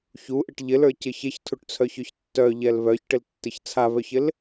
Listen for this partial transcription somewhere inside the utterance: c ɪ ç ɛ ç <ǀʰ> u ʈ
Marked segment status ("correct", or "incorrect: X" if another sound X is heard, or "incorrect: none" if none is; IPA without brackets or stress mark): incorrect: tʰ